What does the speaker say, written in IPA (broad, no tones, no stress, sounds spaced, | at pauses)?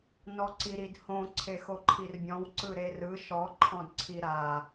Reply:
n ɔ ǀ i ɾ i d h õ ǀʰ e x o ǃʰ i r bʲ ɔ̃ w ǀ ɯ ɾ e r ɯ ʃ ɔ ǃʰ ɔ̃ d ǀʰ i ɾ a